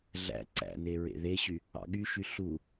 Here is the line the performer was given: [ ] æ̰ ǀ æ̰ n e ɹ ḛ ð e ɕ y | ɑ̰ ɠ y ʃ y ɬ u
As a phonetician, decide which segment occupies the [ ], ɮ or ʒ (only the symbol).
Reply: ɮ